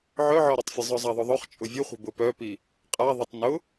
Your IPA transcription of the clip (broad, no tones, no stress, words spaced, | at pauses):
ʕœʕɔɾetˤfʲə zˤœzˤaðˤʊðˤœχ t͡ʃʼʊvʲʊχʷə̤ bʊpœpi | qʼa ðˤʊtˤnʊ